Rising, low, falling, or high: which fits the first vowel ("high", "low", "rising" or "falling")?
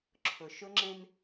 low